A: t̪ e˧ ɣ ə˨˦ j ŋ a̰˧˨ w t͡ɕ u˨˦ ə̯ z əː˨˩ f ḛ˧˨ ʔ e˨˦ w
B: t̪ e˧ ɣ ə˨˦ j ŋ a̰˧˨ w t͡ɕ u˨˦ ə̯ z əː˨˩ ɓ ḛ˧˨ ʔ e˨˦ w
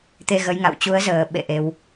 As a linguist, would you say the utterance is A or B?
B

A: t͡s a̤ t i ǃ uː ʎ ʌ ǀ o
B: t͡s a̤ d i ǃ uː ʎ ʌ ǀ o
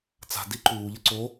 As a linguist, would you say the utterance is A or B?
B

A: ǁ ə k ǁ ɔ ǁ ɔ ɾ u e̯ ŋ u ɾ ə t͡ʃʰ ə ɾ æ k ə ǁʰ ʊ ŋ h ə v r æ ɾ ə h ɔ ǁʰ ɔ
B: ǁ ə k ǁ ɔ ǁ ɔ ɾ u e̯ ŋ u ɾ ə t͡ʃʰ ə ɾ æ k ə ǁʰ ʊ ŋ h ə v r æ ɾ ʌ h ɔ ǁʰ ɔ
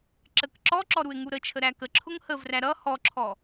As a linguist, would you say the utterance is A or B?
B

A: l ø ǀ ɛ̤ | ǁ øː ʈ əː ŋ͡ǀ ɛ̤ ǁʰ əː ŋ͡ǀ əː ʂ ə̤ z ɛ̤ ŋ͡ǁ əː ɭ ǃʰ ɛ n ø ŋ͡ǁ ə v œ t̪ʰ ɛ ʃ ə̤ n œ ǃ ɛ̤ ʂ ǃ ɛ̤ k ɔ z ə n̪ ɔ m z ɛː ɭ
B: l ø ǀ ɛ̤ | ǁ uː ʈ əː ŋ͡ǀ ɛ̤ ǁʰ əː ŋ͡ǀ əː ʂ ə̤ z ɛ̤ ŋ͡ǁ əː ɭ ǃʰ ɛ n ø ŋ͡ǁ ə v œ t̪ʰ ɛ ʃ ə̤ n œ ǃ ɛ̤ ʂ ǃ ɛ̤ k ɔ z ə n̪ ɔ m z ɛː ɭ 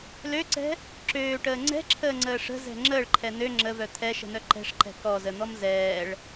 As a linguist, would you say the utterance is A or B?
A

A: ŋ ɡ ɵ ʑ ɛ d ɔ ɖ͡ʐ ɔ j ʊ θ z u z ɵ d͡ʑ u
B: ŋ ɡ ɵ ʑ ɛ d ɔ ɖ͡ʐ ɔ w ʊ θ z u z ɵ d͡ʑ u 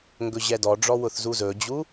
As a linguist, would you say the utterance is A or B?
B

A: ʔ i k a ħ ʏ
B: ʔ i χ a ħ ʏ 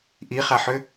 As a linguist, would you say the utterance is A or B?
B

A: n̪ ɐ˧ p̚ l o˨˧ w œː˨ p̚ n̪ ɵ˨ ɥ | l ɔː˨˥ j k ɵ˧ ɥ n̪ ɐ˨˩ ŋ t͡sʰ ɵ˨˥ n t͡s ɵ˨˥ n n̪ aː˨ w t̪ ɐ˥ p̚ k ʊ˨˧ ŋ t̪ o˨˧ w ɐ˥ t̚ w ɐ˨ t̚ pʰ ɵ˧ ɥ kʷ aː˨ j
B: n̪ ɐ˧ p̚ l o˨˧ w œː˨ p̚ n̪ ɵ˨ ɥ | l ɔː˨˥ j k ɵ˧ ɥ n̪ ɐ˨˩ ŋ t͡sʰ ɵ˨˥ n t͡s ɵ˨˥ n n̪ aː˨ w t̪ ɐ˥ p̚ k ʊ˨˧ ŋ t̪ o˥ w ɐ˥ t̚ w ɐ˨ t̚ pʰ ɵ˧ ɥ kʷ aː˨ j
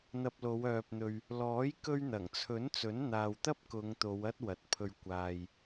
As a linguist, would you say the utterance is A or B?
A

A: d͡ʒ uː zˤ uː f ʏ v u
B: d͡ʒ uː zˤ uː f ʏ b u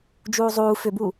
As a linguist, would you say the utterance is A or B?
B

